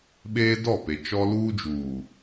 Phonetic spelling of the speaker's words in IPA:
ɓ eː˦ d ɔ˦˨ p e˨ t͡ʃ ɔ˦ l uː˦ d͡ʒ uː˨

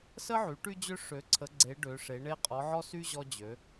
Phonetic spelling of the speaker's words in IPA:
s ə˥ ʕ y˩˥ ʈ y˥ d͡ʑ ø˥ ʂ ø˩˥ ǀʰ ə˩˥ ɡ͡ǀ e˩˥ ɖ ø˩˥ ʂ e˩˥ ɳ e˥ qʼ ɔ˩˥ ʕ ɔ˥ s y˥ ʑ ɔ˥ d͡ʑ ø˩˥

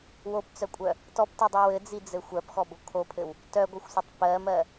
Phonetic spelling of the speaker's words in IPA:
w o p t͡s œ kʷʼ œ | t ɔ p t ɯ dˤ ɯ w ɘ d͡z i d͡z ɘ xʷ ɜ p x ɔ b o kʰ o pʰ ɘ w | t œ ɡʷ ɘ xʷ sʷ ɘ tˤ p ɜ m ɜ

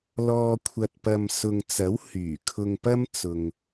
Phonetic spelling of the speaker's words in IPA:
l ɔː˧ kʷʰ ɐ˧ t̚ p ɐ˧ m s ʊ˨ ŋ t͡s ɐ˨˥ w h yː˨˩ kʰ ʊ˧ ŋ p ɐ˥ m t͡s ʊ˨ ŋ

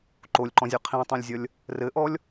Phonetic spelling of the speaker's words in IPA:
ǃ o lʲ ǃ ɔ̃ zʲ ʌ qʰ ĩ tˤ õ lʲ zʲ ʌ lʲ | r ɘ ʔ ɔ lʲ

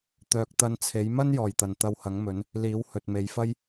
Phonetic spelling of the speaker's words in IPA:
t̪ œː˨ k̚ t̪ ɐ˧ n t͡sʰ e˨˥ j m ɐ˥ n j ɔː˨˩ j t̪ ɐ˨˩ n t̪ ɐ˧ w h ɐ˨˥ ŋ m ɵ˨˥ n | l iː˨˥ w h ɵ˨ t̚ m e˨˧ j f ɐ˥ j

